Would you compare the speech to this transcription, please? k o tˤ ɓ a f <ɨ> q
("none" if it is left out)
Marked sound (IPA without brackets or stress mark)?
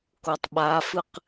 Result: ɨ